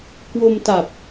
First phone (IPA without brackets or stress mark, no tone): k